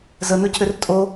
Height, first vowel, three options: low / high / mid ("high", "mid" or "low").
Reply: mid